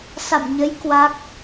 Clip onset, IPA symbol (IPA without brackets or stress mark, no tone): s